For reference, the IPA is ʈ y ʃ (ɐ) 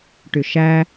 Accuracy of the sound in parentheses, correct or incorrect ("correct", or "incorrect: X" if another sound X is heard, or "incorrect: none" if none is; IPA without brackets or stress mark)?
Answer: incorrect: æ